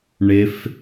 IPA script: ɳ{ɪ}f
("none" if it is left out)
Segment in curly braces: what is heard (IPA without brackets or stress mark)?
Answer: ɪ